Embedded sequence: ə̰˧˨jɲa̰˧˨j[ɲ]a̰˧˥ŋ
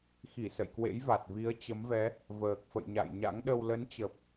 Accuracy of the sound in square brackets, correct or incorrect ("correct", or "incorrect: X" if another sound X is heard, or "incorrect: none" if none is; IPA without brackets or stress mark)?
correct